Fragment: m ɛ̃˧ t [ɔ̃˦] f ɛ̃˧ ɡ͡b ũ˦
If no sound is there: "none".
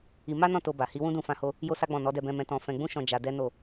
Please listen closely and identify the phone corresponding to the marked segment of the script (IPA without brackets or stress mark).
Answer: ɔ̃˧